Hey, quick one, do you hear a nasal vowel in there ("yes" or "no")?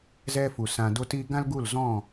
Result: yes